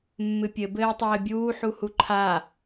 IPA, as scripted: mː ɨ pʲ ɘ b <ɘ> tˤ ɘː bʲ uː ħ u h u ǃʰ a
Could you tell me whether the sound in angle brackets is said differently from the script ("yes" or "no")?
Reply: yes